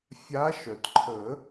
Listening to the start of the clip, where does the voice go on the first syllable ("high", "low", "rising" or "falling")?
rising